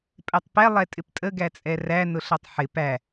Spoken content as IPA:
pʼ ɛ tˤ p ɛ lˠ ɛ tʼ ɪ p tʼ ə ɡ æ t͡sʼ ɛ r æ n ʊ ɬ ʌ tˤ ħ ɪ p æ

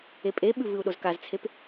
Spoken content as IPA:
e pʼ e ɓ ʉ v ɨ u̯ ɗ o z k a z t͡sʰ e p

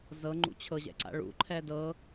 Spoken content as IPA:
z ɤ ŋ͡ǃ ṵ t͡ɕʰ ɤ ʑ ɛ̰ ǀ a̰ ɭ ṵ ǃʰ ɛ d ɤ

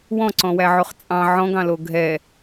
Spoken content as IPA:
w ɔ̃ ǀ ɔ̃ w æ ʕ o χ t͡sʼ ɑ̃ ʕ ɔ̃ ɡ ɑ̃ l o ɡʱ ɛ

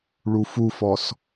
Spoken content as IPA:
ɭ u f u f ɔ s

